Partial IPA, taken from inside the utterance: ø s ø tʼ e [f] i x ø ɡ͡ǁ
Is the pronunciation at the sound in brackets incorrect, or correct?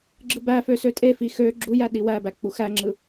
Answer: correct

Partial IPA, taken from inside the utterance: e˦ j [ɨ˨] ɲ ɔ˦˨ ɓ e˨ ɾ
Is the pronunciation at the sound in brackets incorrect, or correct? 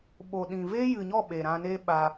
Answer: correct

